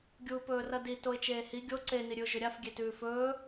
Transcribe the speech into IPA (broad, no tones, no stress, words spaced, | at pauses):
ɡʲuːpɵːrɐdi toɪ̯t͡ʃeːhi ɡʲo ǀe niɾʲʉʊ̯ʒɵɾʲaf ɡʲetʉːfɵː